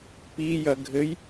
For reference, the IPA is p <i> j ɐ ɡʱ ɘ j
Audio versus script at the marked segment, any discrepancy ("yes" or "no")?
no